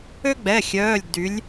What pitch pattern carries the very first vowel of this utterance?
high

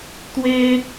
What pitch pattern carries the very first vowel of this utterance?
high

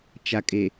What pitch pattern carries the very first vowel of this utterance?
low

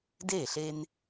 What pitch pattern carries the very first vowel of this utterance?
falling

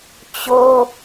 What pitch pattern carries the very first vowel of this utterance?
high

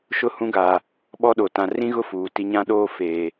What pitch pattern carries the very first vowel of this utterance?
falling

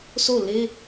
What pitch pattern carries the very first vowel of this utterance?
falling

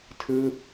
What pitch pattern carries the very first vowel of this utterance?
falling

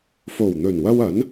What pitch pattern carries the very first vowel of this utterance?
low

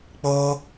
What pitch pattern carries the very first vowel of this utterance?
high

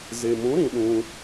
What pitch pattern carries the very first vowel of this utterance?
low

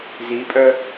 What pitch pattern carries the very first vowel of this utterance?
rising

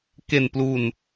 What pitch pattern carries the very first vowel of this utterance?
low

